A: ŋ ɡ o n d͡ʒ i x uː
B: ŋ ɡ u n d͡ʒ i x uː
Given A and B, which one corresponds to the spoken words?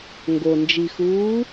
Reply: A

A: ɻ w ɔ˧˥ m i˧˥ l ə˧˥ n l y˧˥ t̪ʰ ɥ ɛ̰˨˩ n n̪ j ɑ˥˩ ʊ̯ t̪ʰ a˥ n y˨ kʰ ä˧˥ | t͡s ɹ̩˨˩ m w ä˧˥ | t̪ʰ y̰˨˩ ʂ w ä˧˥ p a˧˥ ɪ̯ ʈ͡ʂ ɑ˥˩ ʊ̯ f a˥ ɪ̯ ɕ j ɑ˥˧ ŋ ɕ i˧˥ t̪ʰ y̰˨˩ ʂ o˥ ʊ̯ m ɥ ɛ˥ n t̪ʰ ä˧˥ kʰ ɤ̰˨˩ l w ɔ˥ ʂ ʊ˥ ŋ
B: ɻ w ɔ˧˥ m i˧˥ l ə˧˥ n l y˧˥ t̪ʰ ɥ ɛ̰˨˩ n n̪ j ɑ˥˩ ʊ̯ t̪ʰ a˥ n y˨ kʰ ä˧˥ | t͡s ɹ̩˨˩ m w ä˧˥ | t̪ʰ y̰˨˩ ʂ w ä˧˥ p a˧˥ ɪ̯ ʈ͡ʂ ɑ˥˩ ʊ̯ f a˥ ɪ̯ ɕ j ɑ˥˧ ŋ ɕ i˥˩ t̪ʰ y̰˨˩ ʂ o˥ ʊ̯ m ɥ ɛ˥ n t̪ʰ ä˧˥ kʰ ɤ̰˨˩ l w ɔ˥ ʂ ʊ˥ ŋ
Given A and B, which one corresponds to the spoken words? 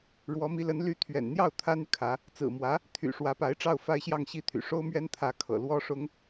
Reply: B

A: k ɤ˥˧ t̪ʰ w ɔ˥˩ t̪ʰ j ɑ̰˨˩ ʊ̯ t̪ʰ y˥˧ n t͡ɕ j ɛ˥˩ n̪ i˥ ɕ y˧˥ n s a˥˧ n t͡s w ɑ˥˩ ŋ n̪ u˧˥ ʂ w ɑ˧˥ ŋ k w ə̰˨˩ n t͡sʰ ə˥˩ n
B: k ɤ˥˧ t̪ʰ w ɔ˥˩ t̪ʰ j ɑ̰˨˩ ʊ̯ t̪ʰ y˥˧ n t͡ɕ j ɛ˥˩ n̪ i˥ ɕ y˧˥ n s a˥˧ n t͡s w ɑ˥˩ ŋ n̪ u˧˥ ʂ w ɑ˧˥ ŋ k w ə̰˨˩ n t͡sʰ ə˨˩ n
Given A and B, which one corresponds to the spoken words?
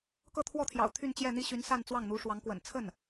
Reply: A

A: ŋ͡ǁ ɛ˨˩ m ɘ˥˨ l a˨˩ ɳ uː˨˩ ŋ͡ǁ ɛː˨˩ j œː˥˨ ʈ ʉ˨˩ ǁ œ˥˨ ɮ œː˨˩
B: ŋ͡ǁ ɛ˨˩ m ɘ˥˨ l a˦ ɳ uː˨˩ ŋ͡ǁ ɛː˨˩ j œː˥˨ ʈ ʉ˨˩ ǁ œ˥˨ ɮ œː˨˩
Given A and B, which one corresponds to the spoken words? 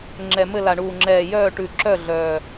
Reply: A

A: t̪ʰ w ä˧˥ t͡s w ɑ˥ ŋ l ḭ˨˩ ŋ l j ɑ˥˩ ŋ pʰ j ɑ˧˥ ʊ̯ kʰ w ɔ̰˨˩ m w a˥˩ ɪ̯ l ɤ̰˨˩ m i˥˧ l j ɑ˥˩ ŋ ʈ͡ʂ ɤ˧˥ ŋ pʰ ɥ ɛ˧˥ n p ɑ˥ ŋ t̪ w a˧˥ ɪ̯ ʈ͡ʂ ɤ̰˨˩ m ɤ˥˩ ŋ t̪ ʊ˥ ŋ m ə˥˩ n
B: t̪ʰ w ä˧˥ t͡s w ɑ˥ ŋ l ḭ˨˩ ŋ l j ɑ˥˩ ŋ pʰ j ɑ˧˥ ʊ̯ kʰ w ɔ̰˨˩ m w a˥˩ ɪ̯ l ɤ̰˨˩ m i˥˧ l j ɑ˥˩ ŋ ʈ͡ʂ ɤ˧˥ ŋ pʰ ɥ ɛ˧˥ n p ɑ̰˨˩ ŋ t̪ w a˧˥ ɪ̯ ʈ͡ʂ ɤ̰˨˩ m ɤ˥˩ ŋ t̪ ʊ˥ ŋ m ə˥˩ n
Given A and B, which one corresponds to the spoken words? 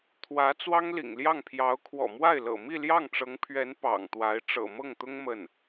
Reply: B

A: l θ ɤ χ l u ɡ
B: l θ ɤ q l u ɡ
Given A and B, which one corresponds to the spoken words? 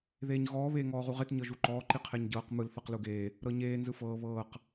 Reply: B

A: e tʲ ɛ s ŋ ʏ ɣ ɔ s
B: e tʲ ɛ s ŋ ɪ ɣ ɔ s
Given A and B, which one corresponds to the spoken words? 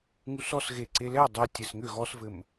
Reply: A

